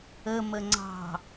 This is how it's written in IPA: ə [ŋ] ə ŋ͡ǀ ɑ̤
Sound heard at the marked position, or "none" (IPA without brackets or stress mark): m